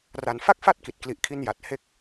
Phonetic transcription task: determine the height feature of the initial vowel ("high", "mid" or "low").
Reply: low